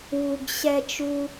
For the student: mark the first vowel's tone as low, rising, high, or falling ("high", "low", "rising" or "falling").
high